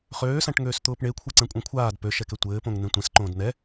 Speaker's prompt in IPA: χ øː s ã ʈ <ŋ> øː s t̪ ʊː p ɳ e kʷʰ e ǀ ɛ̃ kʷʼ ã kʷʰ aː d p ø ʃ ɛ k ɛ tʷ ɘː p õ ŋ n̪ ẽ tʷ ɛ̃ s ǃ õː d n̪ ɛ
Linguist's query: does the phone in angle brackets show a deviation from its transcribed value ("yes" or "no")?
no